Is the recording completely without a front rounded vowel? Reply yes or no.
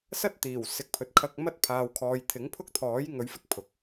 yes